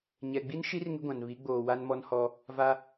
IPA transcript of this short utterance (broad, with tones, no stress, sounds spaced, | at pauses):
ɲ ɛ˨ ɡ͡b i˦ n ʃ i˦ r ŋ ɪ˦ ɡʷ ã˨ n β i˨˦ ɡ͡b oː˨ w a˦ n m ɔ˦ n h ɔ˦ | v a˦